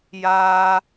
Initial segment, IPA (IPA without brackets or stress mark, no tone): j